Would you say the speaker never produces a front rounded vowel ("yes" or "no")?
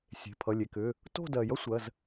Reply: no